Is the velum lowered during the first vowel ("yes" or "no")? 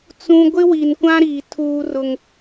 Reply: yes